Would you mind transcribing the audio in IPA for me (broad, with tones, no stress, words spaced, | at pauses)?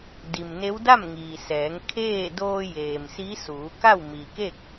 di˩mne˧˥w da˥˨mŋiː˩sɛː˩˧ŋ kʰeː˥˨ doː˧jeː˩m si˧˥ suː˩˧ka˥˨w mi˩ke˥˨k̚